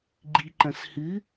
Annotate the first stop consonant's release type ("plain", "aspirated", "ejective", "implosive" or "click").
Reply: click